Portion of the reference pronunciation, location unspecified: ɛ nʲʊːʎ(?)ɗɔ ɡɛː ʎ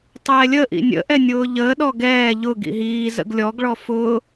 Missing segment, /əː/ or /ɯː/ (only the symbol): əː